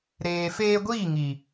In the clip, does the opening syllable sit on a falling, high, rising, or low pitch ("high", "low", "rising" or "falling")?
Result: low